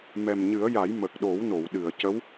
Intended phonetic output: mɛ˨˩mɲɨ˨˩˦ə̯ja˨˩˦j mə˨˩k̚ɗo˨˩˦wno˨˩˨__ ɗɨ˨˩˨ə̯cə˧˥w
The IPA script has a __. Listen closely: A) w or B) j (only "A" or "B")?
A